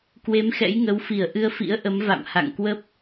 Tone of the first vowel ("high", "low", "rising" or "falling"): rising